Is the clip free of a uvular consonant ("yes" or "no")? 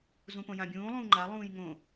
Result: yes